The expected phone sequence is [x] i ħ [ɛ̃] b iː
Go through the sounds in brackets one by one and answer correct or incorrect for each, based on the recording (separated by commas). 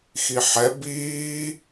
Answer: correct, incorrect